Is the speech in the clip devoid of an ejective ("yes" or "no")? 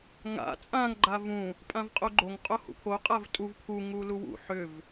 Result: no